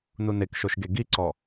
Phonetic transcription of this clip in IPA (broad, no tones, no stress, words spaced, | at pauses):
nunekʃoʃɡe ɡiǀɔ